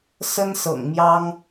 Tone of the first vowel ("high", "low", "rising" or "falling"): high